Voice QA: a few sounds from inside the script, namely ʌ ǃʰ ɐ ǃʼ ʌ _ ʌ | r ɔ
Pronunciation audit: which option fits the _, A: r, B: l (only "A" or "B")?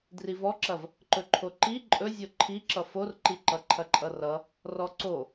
A